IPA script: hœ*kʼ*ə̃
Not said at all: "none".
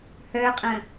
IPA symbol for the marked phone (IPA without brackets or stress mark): qʼ